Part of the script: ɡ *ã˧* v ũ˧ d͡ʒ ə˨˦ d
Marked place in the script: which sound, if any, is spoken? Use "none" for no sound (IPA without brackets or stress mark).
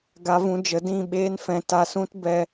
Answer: a˧